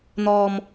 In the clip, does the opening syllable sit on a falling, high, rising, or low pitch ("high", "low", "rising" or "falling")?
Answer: high